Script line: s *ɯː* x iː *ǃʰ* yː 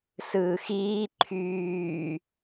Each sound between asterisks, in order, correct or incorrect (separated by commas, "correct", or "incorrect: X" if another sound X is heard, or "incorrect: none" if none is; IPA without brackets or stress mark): correct, correct